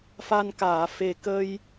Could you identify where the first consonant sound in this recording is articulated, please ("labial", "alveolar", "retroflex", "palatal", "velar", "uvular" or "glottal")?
labial